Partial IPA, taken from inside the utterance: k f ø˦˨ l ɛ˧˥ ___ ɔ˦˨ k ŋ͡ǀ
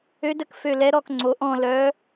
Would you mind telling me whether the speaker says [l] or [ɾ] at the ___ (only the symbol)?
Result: ɾ